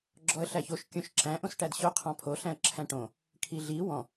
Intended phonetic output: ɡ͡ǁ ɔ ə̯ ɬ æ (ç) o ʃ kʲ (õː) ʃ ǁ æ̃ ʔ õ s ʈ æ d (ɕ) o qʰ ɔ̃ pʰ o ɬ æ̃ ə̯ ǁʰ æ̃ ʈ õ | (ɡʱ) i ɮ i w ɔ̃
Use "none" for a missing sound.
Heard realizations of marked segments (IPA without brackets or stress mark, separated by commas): ç, õ, ɕ, kʰ